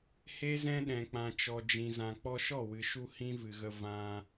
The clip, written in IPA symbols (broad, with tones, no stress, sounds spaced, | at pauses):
h e˦ z ɛ̃˦ ɗ ɛ̃˨ k͡p ã˨ t͡ʃ ɔ˨ d͡ʒ ĩ˨ z ã˨ k͡p ɔ˧ ʃ ɔ˦˨ w ɨ˨ ʃ u˧ h ĩ˦ v ɨ˨ ɣ ə˧ v ã˧